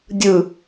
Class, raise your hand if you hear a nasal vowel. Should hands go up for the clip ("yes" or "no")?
no